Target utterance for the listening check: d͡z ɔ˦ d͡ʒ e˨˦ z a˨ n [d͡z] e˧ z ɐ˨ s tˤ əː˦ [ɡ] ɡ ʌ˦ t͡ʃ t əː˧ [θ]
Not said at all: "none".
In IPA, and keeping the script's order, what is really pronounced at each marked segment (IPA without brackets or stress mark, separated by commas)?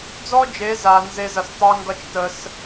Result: z, ŋ, s